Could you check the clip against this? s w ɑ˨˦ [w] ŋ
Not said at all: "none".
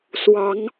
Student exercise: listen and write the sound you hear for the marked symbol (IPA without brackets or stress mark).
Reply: none